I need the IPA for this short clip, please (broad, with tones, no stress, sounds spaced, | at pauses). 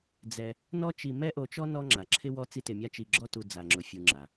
d͡z ɛ˧ | n ɔ˥ t͡ʃ i˧ m ɛ˥ ʔ o˧ t͡ʃ ɔ˥ n ɔ˥ ŋ͡ǁ a˩ ǁʰ ɪ˥ w ɔ˥ t͡s i˥ t ɪ˧ mʲ a˥ t͡ʃ i˧ ɡ͡ǁ ɔ˥ t u˧ d͡z a˧ ŋ͡ǁ ʊ˧ fʲ u˧ ŋ͡ǁ a˩